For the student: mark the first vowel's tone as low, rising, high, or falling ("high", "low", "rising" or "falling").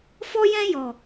high